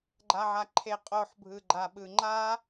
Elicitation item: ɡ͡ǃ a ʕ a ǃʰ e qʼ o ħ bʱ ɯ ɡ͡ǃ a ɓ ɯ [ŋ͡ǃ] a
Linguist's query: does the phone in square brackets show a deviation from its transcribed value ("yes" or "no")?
no